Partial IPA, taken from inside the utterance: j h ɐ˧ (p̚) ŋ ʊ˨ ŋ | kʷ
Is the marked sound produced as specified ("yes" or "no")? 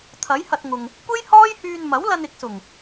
no